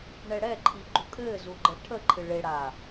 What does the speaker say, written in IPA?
ɳ ɛ ɽ ɛ ǃʰ i ɡ͡ǃ u kʼ ɘː z u ɡ͡ǃ ə ʈʰ ə ǃʰ ɨ ɭ e ɽ a

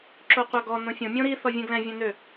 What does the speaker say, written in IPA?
ǁ o qʷ a ɡ ɔ n õ fʲ õ mʲ õ ɾ i θ ɔ vʲ ɛ̃ ɡ l ɛ̃ vʲ ɛ̃ n ø

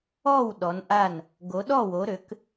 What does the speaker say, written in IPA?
ɔ˥˨ w ɗ ɔ˨˦ n ʔ a˥˨ n | ɡ o˨˦ ɗ ɔ˥˨ w o˨˦ ɾ ø˨˦ k

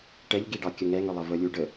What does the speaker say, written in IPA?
ʈ ɛ ʎ ɡ i ɖ ɑ kʲ ə ŋ ɛ ŋ ʏ lˠ ə v ə lʲ u ɖ ə

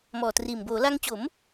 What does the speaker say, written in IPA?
m ɔː˨˩ t r iː˨˩ m b oː˩˦ l a˧ ŋ t͡ɕ o˩˦ m

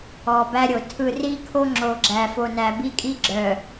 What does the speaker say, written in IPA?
ɔ˨ b æ˦ ɾʲ o˨ tʰ ɯ˨ r i˦ kʰ o˦ ŋ͡ǁ o˨ ɡ͡ǁ æ˨ f o˨ n æ˨ b i˦ kʼ i˦ ɡ͡ǁ œ˨

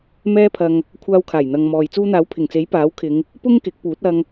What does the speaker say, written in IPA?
m ɛː˥ pʰ ɐ˧ ŋ | kʷʰ aː˧ w kʰ aː˨˩ j n̪ ɐ˨ ŋ m ɔː˨ j t͡s uː˧ n̪ aː˨˥ w pʰ ɪ˨˩ ŋ t͡s e˨˥ j p aː˨˥ w kʰ ɪ˨˧ ŋ | p ʊ˥ ŋ k ɪ˨˥ k̚ p uː˨˥ t̚ ɐ˧ ŋ

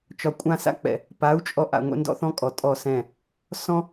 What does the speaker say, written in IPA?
t͡ʃ ɒ˧ kʷʼ ã˦ s a̰˦ k͡p ɛ̰˨ | p a˨˦ u̯ t͡ʃʼ ɔ˧ ʔ a̰˨ ŋʷ ɛ̰˧ n d ɔ̰˧ θ ɔ̃˧ kʼ ɔ˨ tʼ ɔ˦˨ s ɛ̃˦˨ | s ɔ̃˦

